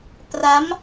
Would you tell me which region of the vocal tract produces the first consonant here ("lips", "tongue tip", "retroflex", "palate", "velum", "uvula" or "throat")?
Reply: lips